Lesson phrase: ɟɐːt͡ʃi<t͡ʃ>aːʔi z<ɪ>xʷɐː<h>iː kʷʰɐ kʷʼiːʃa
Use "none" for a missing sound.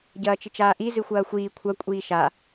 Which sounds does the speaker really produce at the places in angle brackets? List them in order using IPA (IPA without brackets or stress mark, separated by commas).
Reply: t͡ʃ, ɨ, xʷ